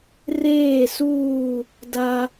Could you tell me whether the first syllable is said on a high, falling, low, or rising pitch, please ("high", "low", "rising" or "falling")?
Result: falling